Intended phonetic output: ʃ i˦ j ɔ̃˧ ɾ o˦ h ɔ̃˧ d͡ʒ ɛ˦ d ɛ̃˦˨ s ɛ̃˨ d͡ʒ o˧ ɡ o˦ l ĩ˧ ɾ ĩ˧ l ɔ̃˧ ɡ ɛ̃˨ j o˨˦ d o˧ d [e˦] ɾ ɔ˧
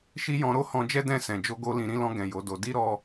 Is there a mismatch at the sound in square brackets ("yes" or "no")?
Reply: yes